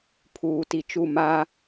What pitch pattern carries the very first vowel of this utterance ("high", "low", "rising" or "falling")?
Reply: low